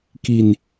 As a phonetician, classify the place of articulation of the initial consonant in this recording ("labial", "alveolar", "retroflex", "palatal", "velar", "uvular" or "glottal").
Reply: velar